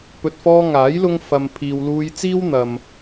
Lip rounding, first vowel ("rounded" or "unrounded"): rounded